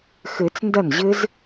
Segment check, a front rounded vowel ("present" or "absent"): absent